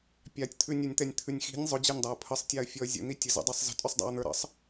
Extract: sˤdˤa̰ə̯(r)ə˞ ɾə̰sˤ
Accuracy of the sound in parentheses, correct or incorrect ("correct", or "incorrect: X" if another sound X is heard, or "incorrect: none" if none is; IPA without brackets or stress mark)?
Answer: incorrect: n̪